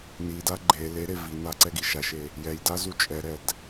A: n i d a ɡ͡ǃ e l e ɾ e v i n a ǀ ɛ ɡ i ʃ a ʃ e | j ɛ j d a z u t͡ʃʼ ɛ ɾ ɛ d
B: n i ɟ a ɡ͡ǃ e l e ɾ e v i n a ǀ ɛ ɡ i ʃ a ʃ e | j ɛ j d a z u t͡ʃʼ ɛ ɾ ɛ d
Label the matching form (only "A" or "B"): A